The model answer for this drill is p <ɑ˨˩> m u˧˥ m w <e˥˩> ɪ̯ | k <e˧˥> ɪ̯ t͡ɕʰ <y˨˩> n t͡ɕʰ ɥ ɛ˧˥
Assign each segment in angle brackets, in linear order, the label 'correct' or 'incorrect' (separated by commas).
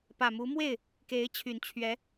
incorrect, correct, correct, correct